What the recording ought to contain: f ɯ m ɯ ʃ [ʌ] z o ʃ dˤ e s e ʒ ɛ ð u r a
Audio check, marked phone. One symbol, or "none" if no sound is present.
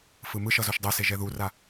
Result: ʌ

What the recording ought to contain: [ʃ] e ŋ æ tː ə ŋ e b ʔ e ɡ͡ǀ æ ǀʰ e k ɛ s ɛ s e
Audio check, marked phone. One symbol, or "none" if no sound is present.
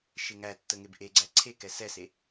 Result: ʃ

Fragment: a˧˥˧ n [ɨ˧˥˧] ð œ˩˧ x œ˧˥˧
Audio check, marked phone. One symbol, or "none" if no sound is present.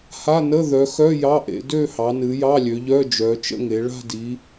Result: ə˧˥˧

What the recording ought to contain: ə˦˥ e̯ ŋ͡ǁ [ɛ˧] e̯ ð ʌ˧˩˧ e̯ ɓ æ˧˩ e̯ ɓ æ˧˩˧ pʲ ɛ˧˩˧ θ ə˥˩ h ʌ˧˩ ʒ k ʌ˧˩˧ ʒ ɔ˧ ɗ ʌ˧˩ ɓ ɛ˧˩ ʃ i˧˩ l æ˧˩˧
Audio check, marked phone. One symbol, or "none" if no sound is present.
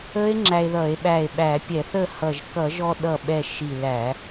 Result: æ˧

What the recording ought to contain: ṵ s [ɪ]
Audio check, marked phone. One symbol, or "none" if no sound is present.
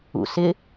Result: ɪ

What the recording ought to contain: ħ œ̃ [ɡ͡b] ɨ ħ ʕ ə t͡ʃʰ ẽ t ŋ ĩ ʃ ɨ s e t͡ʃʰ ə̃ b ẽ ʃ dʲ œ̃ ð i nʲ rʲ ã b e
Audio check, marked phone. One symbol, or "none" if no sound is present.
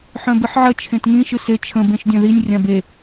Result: b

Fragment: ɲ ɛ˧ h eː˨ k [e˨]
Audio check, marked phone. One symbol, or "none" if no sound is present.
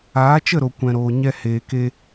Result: e˧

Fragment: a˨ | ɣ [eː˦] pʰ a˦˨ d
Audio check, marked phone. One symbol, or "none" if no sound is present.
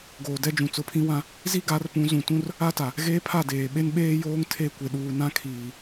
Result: eː˦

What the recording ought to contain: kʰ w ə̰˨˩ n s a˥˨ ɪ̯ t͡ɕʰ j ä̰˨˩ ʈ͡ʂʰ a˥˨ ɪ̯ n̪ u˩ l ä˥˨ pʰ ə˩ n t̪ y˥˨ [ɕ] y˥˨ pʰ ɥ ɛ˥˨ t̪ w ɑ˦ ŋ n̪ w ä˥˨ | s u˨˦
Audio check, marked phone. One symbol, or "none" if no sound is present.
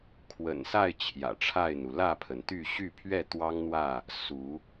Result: ɕ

